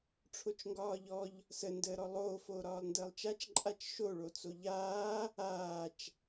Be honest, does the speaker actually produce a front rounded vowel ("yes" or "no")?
no